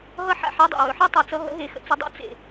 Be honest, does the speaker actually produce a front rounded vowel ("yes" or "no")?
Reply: no